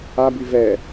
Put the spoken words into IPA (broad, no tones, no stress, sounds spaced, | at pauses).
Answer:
a b y v ɛ